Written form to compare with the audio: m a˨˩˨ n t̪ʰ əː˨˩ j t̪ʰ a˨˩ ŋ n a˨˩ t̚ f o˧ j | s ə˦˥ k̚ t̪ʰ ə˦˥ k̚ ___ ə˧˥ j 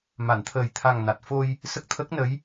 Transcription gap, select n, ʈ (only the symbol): n